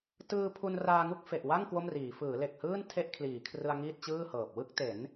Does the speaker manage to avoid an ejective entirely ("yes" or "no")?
yes